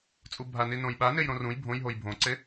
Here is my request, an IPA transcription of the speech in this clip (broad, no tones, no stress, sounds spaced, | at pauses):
t͡sʼ u bʱ a n i n õ j ɓ a n e j ɾ õ r ũ j bʱ õ j ɦ o j bʱ õ ǀ e